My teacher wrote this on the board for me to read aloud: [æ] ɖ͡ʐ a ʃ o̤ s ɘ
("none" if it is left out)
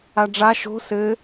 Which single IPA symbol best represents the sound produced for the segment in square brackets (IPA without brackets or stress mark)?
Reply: a